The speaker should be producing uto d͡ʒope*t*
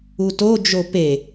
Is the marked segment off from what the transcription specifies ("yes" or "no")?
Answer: yes